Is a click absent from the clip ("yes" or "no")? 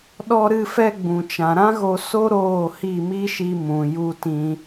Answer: yes